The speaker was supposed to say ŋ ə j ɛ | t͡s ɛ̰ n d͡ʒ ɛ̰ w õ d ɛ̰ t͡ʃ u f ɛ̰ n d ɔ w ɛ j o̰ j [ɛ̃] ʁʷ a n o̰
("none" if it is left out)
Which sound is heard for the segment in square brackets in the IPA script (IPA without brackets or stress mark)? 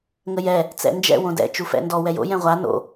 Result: ɛ̃